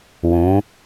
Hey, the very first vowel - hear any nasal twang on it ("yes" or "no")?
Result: yes